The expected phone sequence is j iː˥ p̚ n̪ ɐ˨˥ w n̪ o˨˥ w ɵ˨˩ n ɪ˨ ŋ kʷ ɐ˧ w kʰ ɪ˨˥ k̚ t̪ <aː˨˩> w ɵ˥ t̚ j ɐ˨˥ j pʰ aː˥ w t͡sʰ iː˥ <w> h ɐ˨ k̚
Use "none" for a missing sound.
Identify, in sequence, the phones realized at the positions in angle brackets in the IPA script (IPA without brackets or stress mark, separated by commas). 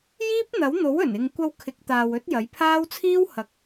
aː˨, w